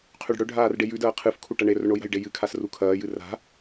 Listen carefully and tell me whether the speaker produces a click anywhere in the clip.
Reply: no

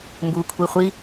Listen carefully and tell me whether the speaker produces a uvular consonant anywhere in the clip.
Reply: yes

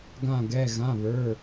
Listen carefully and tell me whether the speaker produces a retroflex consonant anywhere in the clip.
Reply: no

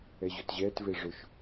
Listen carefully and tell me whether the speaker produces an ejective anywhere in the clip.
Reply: no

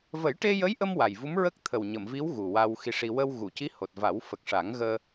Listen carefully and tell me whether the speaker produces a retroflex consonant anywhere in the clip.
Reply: yes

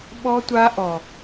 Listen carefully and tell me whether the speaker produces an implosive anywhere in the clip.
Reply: yes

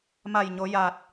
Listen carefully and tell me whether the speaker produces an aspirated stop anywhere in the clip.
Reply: no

